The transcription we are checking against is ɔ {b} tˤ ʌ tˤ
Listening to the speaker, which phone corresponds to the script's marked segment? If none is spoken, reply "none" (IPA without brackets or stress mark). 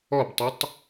b